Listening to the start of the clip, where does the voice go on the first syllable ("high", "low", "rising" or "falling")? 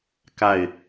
falling